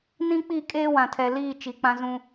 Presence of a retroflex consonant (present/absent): absent